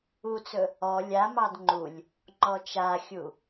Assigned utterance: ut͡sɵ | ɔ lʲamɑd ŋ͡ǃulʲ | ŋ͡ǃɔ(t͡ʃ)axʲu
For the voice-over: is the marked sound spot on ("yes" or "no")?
yes